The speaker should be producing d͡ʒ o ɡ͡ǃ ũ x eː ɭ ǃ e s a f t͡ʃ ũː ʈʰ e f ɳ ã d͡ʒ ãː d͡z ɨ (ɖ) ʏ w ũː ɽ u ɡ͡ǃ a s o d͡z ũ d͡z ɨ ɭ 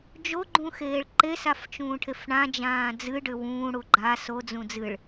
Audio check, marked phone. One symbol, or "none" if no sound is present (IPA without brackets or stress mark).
ɖ